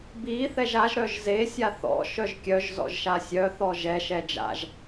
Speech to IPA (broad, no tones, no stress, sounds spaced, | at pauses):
b i θ ɛ ʒ a ʒ ɾ œ ʒ z e sʲ a θ ɔ̰ ʃ œ ʒ kʲ œ ʒ z ɔ̰ ʒ ʃ a sʲ œ θ ɔ ʒ ɛ ʃ ɛ d͡ʒ a̰ ʒ